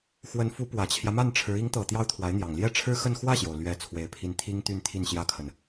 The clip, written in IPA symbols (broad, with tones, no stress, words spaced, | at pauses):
xwə˧˥nfu˧˥ pwä˨˩t͡ɕʰjä˦ma˥˩nʈ͡ʂʰɻ̩˧˥ i˧˥ŋt̪ɤ˨˩ t̪jɑ˥ʊ̯t̪ʰwa˧˥ɪ̯n̪jɑ˨˩ŋ ljɛ˥˩ʈ͡ʂʰɻ̩˥xə˥˧n xwä˥˩ɕjo˩ʊ̯ lɥɛ˥˩ t͡sʰwe˧˥ɪ̯pʰi˥˩n t̪ʰi˥ŋt̪y˥˧n t̪ʰi˥˩nɕjä˥kʰə˨n